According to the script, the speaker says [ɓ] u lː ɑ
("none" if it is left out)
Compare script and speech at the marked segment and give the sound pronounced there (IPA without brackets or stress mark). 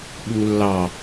ɓ